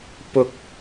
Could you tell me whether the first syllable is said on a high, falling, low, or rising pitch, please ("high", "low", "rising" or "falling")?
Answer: high